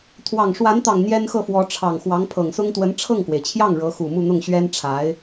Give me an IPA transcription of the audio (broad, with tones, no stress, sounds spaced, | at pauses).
t̪ʰ w ɑ˨˩ ŋ ʂ w a˧˥ n t̪ ɑ˨˩ ŋ n̪ j ɛ˥ n x ɤ˥˩ f w ɔ˧˥ ʈ͡ʂʰ ɑ˨˩ ŋ x w ɑ˧˥ ŋ pʰ ɤ˨˩ ŋ s ʊ˥ ŋ t̪ w ə˧˥ n ʈ͡ʂʰ ɤ˥˩ ŋ k w e˩ ɪ̯ t͡ɕʰ j ɑ˥˩ ŋ ɻ ɤ˧˥ x u˨˩ m u˥˧ n̪ ʊ˥˩ ŋ ɕ ɥ ɛ˥ n ʈ͡ʂʰ a˧˥ ɪ̯